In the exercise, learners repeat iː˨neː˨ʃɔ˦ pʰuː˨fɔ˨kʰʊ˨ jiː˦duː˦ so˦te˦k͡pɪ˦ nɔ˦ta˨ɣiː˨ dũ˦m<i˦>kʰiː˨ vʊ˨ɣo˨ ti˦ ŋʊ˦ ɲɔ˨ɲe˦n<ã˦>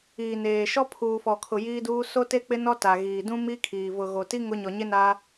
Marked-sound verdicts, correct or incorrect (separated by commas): correct, incorrect